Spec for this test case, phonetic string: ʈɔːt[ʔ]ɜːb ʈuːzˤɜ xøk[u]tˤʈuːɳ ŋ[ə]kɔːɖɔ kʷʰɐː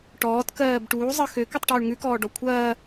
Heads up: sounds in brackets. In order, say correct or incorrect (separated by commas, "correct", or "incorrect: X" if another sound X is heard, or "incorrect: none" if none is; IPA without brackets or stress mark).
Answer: incorrect: k, incorrect: ʉ, incorrect: ʉ